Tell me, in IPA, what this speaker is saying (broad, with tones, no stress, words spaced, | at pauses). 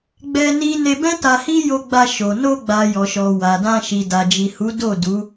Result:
ɡ͡bɛ˦ni˦ ne˧bɛ̃˦ ta˧hi˦jo˧ɡ͡ba˧ ʃo˨ no˧ɡ͡ba˨ jɔ˨ʃɔ˨ wa˨dã˧ ʃi˨da˨d͡ʒi˨hu˨˦ do˦˨du˨˦